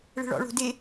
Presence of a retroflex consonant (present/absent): present